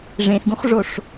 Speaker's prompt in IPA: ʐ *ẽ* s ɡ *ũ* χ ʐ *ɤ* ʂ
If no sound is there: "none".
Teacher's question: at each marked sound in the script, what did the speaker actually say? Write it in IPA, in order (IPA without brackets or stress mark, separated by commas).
ẽ, ũ, o